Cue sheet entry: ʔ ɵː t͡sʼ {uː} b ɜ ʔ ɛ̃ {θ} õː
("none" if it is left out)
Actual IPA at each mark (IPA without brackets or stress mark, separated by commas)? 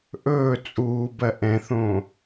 uː, θ